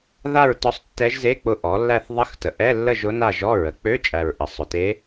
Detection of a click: absent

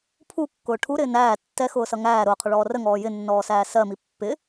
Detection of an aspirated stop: present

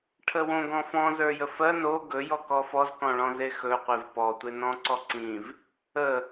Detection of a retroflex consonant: present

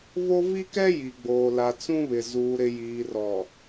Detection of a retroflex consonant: absent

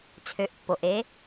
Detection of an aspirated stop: present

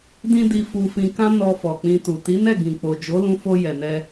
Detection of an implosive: absent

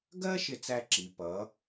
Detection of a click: present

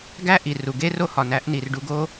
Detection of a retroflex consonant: present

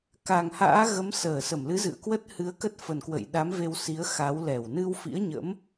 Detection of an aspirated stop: absent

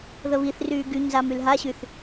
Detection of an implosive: absent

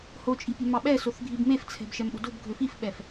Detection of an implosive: present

